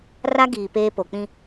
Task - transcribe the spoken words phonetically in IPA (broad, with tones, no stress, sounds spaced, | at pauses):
r a˦ ɡ iː˨ p eː˦ p o˨ k͡p ĩ˦